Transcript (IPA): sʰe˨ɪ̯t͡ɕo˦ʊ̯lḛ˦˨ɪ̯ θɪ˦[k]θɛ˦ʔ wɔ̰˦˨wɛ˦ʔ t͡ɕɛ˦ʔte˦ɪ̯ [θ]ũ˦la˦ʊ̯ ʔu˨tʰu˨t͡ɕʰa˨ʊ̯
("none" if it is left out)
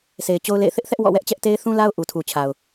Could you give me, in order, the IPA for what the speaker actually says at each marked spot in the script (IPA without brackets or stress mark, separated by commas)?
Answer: ʔ, θ